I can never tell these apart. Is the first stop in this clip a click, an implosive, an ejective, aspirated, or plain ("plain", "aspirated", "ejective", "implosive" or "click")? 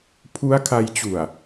aspirated